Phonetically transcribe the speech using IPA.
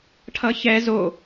ʈʰ ʌ ç ɛ z o

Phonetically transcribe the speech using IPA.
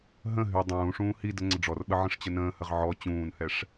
ɦ ə̃ ɦ y dˤ ũː ʂ ũː h i d ə ŋ͡ǀ ə ɖ͡ʐ ɔ r ɓ ə ʕ ə̃ ʂ t͡ɕ ə n ə̃ː h ə ʁ ʕ ɔ t͡ɕ ũː n h ɛ ʂ

